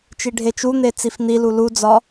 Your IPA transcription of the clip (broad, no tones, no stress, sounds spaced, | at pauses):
t͡ʃ i ɖʱ e t͡ʃ u n̪ e t͡s i f n̪ i l u l u d͡z ɒ